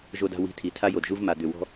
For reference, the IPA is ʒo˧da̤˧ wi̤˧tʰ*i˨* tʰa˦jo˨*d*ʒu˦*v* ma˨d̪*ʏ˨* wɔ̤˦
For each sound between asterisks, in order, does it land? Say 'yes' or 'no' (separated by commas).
yes, yes, yes, yes